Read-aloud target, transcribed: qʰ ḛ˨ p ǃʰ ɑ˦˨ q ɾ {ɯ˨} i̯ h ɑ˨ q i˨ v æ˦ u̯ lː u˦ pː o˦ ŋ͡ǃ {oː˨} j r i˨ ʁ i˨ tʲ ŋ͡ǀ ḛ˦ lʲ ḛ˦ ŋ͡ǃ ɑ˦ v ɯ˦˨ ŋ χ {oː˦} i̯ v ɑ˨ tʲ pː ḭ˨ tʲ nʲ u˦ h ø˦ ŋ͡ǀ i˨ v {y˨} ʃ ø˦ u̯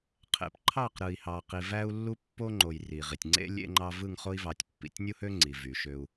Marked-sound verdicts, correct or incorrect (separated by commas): correct, incorrect, incorrect, correct